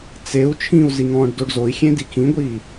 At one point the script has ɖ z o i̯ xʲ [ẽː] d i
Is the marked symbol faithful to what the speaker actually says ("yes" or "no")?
no